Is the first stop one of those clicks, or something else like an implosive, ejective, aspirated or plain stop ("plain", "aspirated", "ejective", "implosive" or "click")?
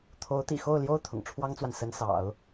aspirated